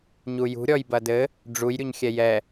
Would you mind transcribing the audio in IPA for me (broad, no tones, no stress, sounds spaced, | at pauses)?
ɲ u j ṳ ɾʲ ɔ j b ɐ d ɘ | ɖ͡ʐ u j ɾʲ u ɲ xʲ ɛ j ɛ